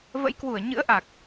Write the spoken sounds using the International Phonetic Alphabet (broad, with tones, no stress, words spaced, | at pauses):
və̰˧˥jkwu˧˩ə̯ ɲɨ̰˧˥ə̯ʔa˨˩k̚